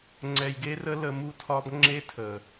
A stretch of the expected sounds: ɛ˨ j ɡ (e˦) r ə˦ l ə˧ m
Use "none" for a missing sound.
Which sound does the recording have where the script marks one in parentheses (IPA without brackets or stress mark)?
e˦